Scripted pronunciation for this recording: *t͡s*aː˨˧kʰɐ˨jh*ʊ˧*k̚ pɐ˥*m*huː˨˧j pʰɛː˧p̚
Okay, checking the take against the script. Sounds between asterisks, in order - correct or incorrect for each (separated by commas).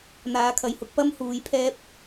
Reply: incorrect, correct, correct